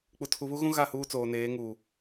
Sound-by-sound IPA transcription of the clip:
k͡p u˨ tʰ u˨ β u˦ ɣ ũ˦ ɣ a˦˨ h uː˦ t͡s oː˨ n eː˨˦ ŋ uː˨

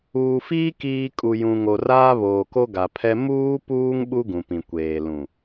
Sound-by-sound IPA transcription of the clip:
uː˨ f iː˦ k iː˨ kʼ u˨ j ũ˨ ŋ o˨ r aː˦ β oː˨ k o˦ ɡ a˨ pʰ ɛ˦ m uː˦ p uː˦ ŋ ɓ u˦ ɡ ũ˨ p ĩ˨ kʷ eː˨ l ũ˨

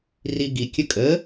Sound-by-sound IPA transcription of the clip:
r i ɡ i kʲ ə kʼ ə

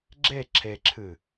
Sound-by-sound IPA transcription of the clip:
ɡ͡ǁ e ǁʰ e ǁʰ ɨ

